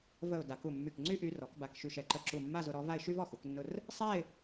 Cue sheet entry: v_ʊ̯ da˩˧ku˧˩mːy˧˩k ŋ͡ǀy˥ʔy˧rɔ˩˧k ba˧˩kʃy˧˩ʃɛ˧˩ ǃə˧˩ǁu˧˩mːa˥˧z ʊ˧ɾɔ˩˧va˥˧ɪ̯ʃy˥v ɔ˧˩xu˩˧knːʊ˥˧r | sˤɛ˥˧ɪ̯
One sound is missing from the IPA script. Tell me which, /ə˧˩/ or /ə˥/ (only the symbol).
ə˧˩